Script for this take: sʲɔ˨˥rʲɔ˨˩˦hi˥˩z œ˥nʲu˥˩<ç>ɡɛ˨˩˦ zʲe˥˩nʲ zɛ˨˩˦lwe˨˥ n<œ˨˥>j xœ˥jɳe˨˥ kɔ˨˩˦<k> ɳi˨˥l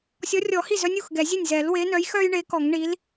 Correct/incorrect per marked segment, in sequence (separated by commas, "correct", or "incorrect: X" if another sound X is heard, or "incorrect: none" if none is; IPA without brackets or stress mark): incorrect: x, correct, incorrect: ŋ